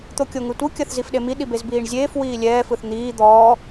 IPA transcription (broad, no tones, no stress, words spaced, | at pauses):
t̪okʲoŋɯtʷɯ kʲɐθzifɗemi ɗibezbiːɳzʲeːf wiːlʲɛː fɯθn̪iː d̪ɔː